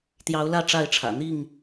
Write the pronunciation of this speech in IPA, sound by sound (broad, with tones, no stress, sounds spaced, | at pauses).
t̪ j ɑ˨˦ ʊ̯ l ä˥˨ ʈ͡ʂ a˥˨ ɪ̯ ʈ͡ʂʰ ä̰˨˩ n̪ i˥˨ ŋ